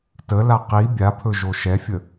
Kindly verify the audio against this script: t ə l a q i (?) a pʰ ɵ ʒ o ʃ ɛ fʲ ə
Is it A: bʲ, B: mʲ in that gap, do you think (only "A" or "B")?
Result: A